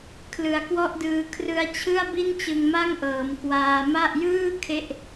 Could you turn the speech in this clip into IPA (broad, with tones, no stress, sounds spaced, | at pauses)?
kʰ l ɯ˨˩ a̯ k w ɔ˥˩ ʔ d ɯː˧ kʰ r ɯ˧ a̯ t͡ɕʰ ɯ˥˩ a̯ b i˥˩ n t͡ɕ ɯ˧ ŋ m a˥˩ ŋ ʔ ɤː˩˦ m k w aː˧ m a˥˩ ʔ j ɯː˥˩ kʰ e˥˩ ʔ